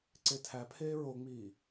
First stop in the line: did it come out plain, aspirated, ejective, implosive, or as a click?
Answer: click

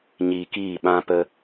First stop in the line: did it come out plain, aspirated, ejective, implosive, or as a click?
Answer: plain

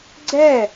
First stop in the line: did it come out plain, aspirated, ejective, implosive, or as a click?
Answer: click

